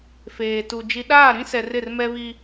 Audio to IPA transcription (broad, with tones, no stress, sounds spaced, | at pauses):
f eː˨ t u˨ d͡ʒ i˨ ɗ aː˦˨ ɾ ĩ˦ s ɛ˨ r ɪ˦˨ r m ɛ˦ β i˦